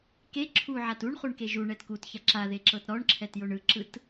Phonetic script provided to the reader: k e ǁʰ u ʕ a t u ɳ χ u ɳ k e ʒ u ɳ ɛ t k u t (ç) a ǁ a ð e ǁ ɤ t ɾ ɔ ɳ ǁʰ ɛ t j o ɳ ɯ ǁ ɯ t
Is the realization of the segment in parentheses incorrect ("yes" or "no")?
no